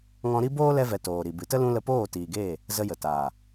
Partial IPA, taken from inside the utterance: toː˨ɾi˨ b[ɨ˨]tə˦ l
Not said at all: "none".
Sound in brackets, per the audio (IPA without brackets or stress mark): ɨ˨